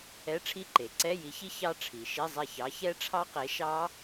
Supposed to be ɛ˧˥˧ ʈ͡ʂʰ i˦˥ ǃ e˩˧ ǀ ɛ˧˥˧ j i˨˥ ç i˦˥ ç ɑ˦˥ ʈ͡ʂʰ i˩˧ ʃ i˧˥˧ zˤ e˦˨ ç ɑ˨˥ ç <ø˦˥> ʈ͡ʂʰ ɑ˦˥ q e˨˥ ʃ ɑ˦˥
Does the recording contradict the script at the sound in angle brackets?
yes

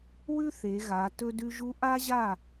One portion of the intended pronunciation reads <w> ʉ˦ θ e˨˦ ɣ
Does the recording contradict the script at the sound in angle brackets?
no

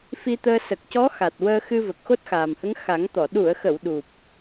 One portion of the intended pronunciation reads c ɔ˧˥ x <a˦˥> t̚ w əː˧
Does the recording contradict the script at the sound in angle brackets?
yes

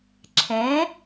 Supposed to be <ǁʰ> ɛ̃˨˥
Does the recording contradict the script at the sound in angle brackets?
no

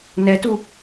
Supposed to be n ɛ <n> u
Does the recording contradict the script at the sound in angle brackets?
yes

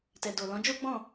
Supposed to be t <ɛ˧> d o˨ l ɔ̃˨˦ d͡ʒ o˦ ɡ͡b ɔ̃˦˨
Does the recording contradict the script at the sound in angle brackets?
yes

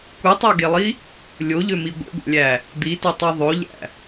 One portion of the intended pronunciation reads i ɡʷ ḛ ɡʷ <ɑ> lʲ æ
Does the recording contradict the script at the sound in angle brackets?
yes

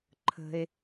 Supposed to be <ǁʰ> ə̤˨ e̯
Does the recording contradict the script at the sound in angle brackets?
yes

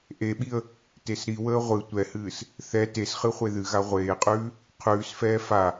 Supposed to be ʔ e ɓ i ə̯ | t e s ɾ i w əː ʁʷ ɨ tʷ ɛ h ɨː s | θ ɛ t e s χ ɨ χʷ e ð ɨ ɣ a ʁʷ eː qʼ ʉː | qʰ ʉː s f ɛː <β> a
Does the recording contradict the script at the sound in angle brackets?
yes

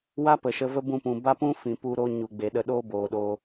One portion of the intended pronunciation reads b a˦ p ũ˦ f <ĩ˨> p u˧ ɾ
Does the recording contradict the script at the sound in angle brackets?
no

